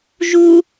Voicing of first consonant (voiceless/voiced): voiced